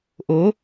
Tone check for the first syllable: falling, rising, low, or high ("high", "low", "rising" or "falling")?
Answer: rising